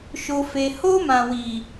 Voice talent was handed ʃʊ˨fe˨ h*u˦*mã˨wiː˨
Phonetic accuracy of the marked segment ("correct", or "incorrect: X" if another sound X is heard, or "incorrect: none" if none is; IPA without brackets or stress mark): incorrect: o˦